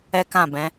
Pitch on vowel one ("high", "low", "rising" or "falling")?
high